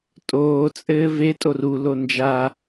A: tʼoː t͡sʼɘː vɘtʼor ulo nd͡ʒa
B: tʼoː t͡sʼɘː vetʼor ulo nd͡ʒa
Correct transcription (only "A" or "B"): B